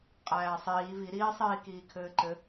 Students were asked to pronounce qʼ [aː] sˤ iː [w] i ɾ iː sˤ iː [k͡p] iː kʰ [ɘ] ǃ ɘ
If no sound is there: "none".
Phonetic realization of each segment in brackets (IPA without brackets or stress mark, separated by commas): æː, v, k, ɘː